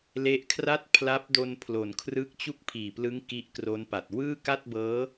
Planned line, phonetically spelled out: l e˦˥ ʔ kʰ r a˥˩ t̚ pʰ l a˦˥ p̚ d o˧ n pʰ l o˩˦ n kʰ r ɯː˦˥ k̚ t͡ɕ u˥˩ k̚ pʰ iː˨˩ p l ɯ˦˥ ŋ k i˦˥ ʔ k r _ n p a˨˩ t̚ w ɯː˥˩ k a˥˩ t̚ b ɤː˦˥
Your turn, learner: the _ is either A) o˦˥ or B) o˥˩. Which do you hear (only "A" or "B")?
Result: A